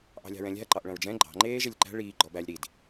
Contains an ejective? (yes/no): no